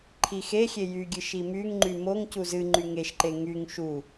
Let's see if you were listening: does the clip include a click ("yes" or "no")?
yes